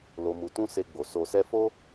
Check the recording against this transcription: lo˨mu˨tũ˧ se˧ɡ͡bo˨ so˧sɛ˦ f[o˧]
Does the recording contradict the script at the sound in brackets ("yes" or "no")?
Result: yes